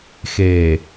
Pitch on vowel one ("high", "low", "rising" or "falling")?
low